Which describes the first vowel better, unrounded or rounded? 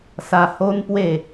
unrounded